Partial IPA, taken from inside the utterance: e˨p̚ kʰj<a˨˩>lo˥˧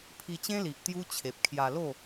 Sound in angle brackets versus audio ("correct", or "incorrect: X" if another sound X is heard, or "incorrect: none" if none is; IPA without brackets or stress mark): incorrect: a˧